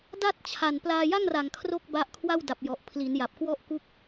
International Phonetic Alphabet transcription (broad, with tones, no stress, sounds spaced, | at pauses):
d a˥˩ t̚ t͡ɕʰ a˨˩ n p l aː˧ j a˥˩ ŋ r a˨˩ ŋ kʰ r o˥˩ k̚ b a˦˥ ʔ kʰ w a˥˩ w d a˨˩ p̚ j ɔ˨˩ ʔ pʰ l i˩˦ n j a˨˩ p̚ k w ɔ˥˩ ʔ k u˥˩ k̚